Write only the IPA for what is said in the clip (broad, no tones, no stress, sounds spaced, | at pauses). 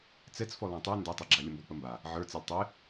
t͡s ɛ t͡s f ɔ l ã tˤ ə˞ n d ɛ tˤ ɛ ɡ͡ǁ a lʲ ə m b ɔ k͡p ə m b a | ʕ ə˞ t͡s ɛ lʲ tˤ ɪ